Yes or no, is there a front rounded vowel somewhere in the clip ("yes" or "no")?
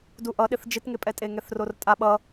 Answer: no